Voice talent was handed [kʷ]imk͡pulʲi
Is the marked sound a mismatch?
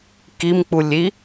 yes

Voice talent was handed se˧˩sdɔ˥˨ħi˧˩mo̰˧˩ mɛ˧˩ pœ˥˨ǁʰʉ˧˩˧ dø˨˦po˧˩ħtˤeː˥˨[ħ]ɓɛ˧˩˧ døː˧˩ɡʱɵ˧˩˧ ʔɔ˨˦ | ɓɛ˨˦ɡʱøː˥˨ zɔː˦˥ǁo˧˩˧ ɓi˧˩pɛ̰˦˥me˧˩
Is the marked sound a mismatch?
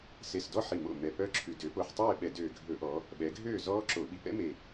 yes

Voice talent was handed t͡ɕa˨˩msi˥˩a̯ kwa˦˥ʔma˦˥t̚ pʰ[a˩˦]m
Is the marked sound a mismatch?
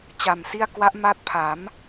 no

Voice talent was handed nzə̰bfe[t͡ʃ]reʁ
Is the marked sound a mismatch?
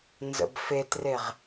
yes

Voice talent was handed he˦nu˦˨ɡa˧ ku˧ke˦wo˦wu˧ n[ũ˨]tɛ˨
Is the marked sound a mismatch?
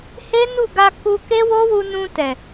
yes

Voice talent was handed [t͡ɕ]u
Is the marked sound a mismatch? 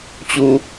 no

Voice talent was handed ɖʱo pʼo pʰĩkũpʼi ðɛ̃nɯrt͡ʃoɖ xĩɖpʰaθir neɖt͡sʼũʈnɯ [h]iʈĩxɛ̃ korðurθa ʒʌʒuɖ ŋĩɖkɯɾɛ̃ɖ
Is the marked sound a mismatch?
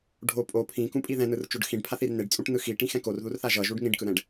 yes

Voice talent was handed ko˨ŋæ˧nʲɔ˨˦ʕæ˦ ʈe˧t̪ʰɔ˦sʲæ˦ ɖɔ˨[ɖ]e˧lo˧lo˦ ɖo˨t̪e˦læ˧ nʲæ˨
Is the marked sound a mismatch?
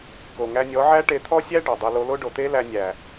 yes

